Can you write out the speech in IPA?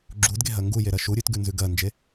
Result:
ɡ͡ǁ u d ɡ e ɦ ɜ ŋ ɡ u j e ɾ ɜ ʃ u ɾʲ ʉ t ɡ ʉ n z ʉ ɡ ɜ n d͡ʒ e

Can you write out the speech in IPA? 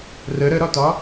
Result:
r ə ɾ ə ɾ ɒ t ɒ

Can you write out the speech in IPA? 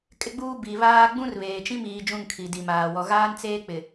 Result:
kʼ ɪ˦ ɡ͡b uː˦ b i˨ β aː˦ ɡ͡b ũ˦ r β eː˨ t͡ʃ ĩ˦ m iː˨ d͡ʒ ũ˦˨ ŋ kʰ i˨ d i˨ m aː˨ w ɔ˨ ɣ aː˦ n t͡s eː˦ k͡p ɪ˨

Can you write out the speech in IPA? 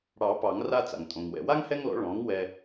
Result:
ɽ ɑ˨˩˦ p ɑ˨˩˦ ŋ r a˦ t͡s a̰˩ ŋ tʼ õ˩ ŋ w ɛ̰˩ w a˦ ŋ h ɛ˦ ŋ l ɔ̰˩˥ ɭ ɔ̃˩˥ ŋ w ɛ˦

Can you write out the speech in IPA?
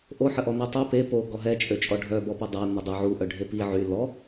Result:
ʔ o ħ ə ʔ ɔ n e tˤ ø p e p o ɡ ɔ ɦ ɛ t͡ʃʼ ø t͡ʃʼ ɔ ɖʱ œ b ɔ p ə dˤ a n ə dˤ ø ʕ u ʔ œ ɖʱ e p i ʕ y l ɔ

